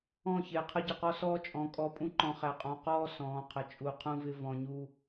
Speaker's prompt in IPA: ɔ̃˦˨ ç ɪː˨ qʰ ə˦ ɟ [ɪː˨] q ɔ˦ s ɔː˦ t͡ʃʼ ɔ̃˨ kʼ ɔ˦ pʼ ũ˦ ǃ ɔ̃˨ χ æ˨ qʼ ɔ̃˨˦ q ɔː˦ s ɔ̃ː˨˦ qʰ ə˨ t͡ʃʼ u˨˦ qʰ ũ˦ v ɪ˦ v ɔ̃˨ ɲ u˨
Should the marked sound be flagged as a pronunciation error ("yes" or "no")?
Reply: yes